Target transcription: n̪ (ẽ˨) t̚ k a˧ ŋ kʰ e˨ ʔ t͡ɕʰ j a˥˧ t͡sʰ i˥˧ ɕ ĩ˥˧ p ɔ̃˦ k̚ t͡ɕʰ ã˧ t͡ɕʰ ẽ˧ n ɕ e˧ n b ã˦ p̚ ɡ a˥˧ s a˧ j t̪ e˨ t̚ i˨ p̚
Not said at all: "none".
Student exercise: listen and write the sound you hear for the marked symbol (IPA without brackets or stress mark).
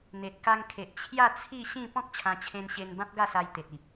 e˨